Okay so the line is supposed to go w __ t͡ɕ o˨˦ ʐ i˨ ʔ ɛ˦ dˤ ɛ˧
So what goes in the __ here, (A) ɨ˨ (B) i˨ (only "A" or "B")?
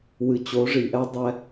A